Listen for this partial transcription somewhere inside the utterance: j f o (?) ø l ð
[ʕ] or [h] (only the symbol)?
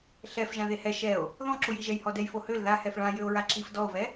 h